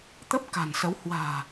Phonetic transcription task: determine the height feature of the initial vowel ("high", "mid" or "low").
mid